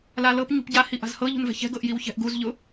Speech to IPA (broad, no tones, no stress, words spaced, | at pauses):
lalɤp ɲṳpɟa hiʔa̤zhɤ ʎṳnvɛ̤çɛ̤ ɡɤʔjiwçɛ̤ʔɡuz ʎʊ